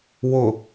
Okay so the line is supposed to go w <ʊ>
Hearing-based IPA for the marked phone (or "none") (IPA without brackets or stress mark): ʊ